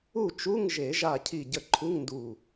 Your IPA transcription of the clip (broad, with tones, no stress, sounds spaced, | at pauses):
u˥˨ t͡ʃ u˧˥˧ ŋ ʒ e˨˩˦ ʒ a˧˩ cʰ i˧˩ ɟ ə˧˩ ǃʰ u˧˥˧ ŋ n d u˧˩